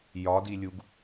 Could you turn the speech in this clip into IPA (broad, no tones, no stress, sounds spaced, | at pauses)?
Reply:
j ɒ d i lʲ u ɡ